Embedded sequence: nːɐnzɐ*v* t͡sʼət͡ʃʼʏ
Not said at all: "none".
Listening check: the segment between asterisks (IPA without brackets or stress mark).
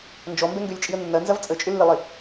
v